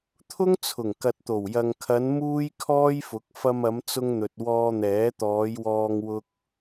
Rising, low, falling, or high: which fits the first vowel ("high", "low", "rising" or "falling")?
high